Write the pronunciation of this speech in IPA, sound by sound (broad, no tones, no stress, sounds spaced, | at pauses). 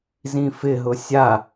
z ĩ f ɪ ɦ ʊ sʲ a